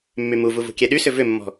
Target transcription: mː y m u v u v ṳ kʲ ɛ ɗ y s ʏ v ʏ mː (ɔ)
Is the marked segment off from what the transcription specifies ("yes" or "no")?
yes